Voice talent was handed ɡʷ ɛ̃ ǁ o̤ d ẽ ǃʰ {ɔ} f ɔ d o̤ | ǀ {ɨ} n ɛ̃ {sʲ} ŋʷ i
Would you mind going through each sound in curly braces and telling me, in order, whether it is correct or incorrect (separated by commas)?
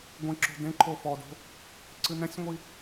incorrect, correct, correct